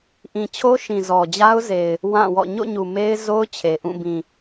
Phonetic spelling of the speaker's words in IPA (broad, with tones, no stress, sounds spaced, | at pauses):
ʔ ĩ˨ t͡ɕʰ o˦ ʃ ĩ˨ z ɔ˨ d͡ʑ a˦ ʊ̯ z e˨ ɪ̯ | w ã˦˨ w ɔ̰˦˨ ɲ o̰˦˨ ɲ u˨ m e˦ ɪ̯ z o˦ ʊ̯ t͡ɕʰ e˨ ʔ ũ˦˨ b ĩ˨